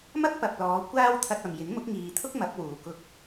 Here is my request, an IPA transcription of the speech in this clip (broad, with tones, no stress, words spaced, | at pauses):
mɐ˥k̚pɐ˨p̚lɔː˨˧ kʷaː˥w t̪ʰɐ˧t̚ɐ˨mjɪ˨˥ŋ mʊ˨˥k̚ŋiː˨t̪ʰʊ˥k̚ mɐ˨˥p̚wuː˨ kʊ˧k̚